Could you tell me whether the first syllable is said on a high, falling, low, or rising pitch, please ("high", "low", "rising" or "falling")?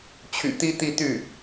low